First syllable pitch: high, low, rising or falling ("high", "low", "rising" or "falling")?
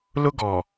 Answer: high